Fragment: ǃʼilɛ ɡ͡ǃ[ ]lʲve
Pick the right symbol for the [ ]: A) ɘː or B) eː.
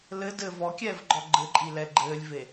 A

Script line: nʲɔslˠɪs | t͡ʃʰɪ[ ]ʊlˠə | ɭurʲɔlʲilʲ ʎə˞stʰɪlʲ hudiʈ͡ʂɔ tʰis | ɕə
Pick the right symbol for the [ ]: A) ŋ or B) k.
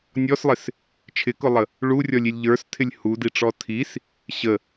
B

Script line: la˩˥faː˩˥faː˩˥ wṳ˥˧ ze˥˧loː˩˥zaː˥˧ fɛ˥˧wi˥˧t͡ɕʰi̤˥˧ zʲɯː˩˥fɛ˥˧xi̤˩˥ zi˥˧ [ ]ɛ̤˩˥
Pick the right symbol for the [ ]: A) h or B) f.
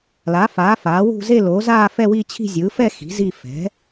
B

